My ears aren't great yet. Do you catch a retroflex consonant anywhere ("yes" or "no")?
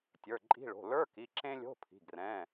yes